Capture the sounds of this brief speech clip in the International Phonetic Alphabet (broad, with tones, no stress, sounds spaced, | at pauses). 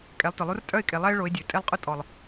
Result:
kʼ ɛ˨˦ lˠ t ʊ˨ lˠ u˦ r tʼ œ˦˨ ɪ̯ kʼ e˨ lˠ ɛ˦ ɪ̯ ɭ o˨˦ ɪ̯ dʲ ø˨ tʼ e˦ lˠ qʼ ʊ˦ tʼ ɔ˨ lˠ